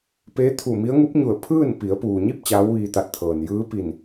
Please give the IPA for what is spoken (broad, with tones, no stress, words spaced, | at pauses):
peː˧˥t̪ʰu˧˩mi˧˥ə̯ ŋu˧˥p̚ɲu˧˩ə̯ pʰɯː˥˨n pi˩˧ə̯puː˩ɲi˥˨p̚ t͡ɕaː˧˥wʋiː˧t̪a˧˩t̚t̪ʰɤː˩n jɯː˧˥pi˧˩n